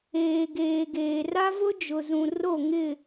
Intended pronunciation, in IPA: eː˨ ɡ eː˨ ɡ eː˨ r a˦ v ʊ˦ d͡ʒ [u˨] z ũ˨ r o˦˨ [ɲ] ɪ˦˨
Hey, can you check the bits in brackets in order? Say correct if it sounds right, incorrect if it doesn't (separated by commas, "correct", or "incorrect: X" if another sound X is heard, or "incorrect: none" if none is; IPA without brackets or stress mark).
incorrect: ʊ˨, incorrect: ŋ